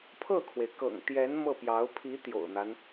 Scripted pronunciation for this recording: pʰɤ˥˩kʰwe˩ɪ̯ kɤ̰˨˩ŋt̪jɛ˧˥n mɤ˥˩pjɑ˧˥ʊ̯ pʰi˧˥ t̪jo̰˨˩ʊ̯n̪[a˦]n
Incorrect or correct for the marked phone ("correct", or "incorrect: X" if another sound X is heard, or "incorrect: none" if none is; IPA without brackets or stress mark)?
correct